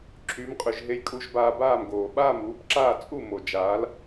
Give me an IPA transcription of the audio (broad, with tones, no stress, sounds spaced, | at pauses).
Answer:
ǁʰ y˩˥ m qʼ y˩ ʒ ɦ e˧ j kʼ u˧ ʒ b aː˧ b aː˥˩ m ɡ oː˩ ɓ aː˥˩ m uː˩˥ b ǁ aː˥˩ t͡sʼ u˥˩ m o˩ d͡ʒ aː˩˥ l